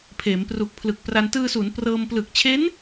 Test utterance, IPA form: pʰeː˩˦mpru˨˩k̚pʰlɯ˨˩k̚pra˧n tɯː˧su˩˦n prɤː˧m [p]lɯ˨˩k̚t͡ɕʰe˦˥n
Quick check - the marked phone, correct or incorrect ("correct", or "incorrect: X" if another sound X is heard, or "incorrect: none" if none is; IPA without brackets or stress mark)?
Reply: correct